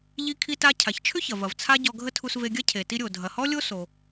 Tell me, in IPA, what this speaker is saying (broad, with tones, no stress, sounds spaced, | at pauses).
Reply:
ʎ i˧ kʰ i˧ t a˧ cʰ a˩ ç t͡ʃʰ ʏ˥ ç ɐ˩ v ɐ˩ v t͡sʰ a˥ ɟ ɔ˧ ɡʱ ə˥ tʰ u˧ s v e˧ ɡʲ ɐ˥ cʰ e˩ t i˧ ɾʲ o˩ dʱ ɐ˩ h ɔ˥ lʲ o˥ s o˩